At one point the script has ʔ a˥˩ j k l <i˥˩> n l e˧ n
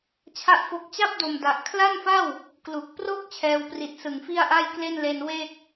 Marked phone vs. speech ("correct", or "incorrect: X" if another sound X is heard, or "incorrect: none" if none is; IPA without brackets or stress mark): incorrect: e˥˩